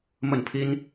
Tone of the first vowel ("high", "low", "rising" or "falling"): falling